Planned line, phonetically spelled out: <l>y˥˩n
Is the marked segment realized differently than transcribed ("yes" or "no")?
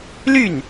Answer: no